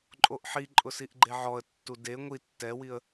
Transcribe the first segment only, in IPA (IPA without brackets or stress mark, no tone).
ǃʼ